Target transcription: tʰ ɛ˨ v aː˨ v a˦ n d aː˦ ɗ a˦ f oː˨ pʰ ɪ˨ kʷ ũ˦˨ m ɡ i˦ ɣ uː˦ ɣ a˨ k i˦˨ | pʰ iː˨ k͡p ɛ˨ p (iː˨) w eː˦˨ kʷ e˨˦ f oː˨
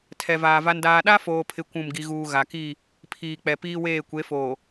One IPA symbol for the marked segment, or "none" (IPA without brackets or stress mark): iː˦